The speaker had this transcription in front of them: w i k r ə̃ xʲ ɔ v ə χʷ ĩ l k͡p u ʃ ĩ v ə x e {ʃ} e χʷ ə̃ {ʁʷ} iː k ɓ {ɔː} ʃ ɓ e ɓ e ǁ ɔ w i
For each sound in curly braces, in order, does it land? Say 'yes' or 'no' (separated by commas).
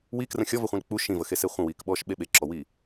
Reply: no, no, yes